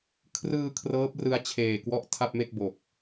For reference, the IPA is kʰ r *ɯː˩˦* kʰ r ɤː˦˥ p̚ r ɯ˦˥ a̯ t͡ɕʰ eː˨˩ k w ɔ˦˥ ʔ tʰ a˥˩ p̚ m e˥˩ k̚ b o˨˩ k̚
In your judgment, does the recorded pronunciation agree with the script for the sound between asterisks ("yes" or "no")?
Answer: no